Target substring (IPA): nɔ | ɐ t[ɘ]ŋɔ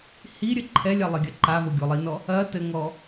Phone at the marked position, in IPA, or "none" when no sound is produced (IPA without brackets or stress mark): ɘ